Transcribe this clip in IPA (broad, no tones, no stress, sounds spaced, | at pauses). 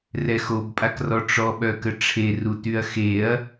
r ɛ x o b pʼ a k r ɔ ʈ͡ʂ ɔ ɓ œ k ə ʈ͡ʂʰ e r u t y ɐ̯ x e ɐ̯